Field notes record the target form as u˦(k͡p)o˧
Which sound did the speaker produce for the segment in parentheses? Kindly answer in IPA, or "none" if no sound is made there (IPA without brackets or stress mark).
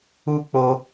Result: k͡p